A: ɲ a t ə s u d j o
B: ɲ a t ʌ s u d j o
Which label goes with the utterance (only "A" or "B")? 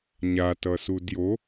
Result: B